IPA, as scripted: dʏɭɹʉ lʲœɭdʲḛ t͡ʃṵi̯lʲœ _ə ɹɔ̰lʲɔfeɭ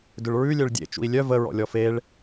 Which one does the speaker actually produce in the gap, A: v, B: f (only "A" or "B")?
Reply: A